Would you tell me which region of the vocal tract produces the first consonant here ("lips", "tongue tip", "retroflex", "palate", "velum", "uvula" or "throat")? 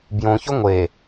lips